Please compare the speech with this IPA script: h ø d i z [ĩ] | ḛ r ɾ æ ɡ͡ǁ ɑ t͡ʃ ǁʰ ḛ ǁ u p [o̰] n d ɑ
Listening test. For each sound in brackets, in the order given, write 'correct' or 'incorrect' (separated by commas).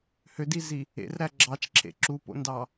incorrect, correct